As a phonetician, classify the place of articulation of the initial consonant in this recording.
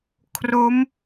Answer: velar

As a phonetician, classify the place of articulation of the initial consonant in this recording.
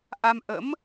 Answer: glottal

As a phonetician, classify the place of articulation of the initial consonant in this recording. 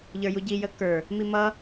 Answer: palatal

